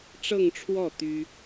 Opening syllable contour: falling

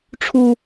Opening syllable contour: low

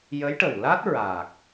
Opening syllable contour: rising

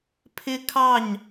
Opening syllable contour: high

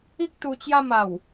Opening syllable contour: high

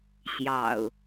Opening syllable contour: low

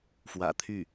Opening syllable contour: low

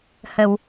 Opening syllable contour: low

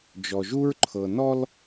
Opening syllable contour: low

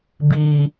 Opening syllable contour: high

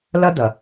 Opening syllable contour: high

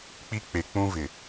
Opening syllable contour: high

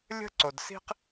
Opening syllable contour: high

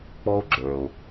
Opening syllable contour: high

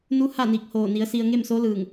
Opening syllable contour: rising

